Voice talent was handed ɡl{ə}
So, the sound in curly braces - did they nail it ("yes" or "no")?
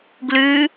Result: no